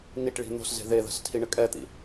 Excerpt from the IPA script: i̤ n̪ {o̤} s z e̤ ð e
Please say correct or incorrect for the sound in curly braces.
correct